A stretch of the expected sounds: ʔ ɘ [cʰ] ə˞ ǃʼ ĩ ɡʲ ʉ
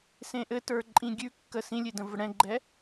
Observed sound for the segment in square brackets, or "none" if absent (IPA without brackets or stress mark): t